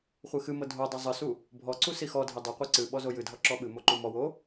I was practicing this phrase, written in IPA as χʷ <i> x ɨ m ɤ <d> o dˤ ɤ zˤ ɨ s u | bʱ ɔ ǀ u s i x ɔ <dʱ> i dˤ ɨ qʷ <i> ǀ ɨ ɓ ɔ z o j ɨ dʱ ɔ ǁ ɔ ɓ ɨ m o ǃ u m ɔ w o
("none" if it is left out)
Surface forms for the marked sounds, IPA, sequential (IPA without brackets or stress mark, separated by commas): ɨ, dʱ, dʱ, i